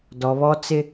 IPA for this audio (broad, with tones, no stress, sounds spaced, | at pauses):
d ɔ˨ β ɔ˦ t͡s ɪ˦